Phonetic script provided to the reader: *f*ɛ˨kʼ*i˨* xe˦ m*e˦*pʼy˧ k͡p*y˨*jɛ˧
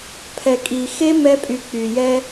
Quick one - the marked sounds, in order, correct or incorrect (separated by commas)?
incorrect, correct, incorrect, correct